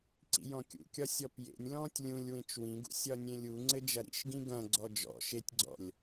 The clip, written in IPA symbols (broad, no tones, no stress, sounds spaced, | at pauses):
ǀ ḭ j ɔ̃ kʲ ṵ kʲ ɒ sʲ ɔ p j ḛ nʲ l ɔ̃ː tʲ lʲ ũ lʲ w ẽ t͡ʃ w ĩ ɡ ṵ sʲ ɒ nʲ ẽ lʲ u ŋ͡ǀ ɘ d͡ʒ ɐ ɾ ḭ ʃ ɡ ĩ ɡ ɐ̃ ɡ͡ǀ ɔ d͡ʒ ɔ̰ ʃ e tʲ ɡ͡ǀ ɔ̰ lʲ